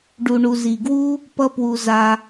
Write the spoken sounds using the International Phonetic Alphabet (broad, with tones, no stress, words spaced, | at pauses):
ɖu˩ɳu˩ zi˩ɡwu˥ | pʌ˧pwu˩ za˩